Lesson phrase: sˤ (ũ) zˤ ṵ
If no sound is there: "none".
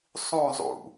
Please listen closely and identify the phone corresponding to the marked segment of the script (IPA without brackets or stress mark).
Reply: ũ